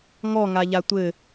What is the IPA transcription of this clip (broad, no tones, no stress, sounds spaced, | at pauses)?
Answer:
ŋ ɔ ŋ a ʎ a tʷ ɘ